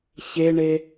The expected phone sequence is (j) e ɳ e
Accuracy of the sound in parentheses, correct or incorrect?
incorrect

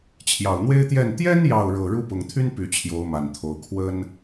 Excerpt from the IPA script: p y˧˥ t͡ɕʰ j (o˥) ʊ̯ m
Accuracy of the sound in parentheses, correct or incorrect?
incorrect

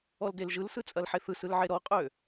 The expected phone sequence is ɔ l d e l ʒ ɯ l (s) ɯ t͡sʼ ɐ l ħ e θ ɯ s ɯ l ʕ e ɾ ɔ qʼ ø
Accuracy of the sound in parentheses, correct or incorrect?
correct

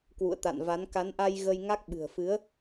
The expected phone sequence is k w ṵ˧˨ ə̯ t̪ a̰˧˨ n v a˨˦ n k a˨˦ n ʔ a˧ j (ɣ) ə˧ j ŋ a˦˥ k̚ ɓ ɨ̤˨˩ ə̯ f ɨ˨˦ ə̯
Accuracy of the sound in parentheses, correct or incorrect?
correct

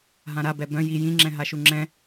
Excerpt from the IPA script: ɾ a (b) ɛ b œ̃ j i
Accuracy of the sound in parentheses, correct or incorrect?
correct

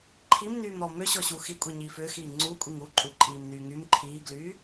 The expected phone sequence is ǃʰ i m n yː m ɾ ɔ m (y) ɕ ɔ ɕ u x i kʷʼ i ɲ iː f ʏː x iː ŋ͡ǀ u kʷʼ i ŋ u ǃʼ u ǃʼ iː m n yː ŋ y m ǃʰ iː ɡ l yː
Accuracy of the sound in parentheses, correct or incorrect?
incorrect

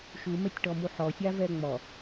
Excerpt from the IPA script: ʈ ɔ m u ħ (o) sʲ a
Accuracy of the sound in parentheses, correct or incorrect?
incorrect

